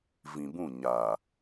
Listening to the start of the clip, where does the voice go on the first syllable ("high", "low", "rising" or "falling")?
low